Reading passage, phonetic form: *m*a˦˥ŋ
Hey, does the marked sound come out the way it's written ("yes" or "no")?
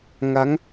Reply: no